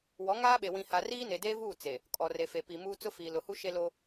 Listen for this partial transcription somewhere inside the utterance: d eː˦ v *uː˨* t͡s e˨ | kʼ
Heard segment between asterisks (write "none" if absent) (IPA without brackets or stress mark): uː˦˨